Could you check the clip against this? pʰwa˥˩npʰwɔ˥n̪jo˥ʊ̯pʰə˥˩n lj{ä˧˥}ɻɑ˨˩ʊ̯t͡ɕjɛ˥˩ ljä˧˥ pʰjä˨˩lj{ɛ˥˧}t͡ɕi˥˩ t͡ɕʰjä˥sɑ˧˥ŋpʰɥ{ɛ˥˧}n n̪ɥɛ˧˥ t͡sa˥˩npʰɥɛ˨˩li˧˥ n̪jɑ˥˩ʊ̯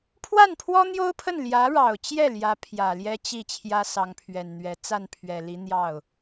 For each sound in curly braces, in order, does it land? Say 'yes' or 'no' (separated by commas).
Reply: yes, no, no